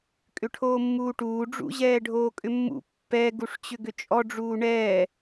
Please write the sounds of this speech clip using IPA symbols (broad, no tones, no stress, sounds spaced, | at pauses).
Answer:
kʼ ʏ ʈʰ oː mː uː ʈ uː ɖ͡ʐ ṵ ʑ ɛː ɖʱ oː kʼ ʏ mː ṵ pː ɛ ɡ u ʂ t͡ɕ ʏ ɡ ʏ t͡ʃʼ ɔ ɖ͡ʐ uː ɳ ɛː